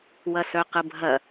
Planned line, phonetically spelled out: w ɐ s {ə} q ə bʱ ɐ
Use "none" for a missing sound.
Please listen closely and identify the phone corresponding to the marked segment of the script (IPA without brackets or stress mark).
œ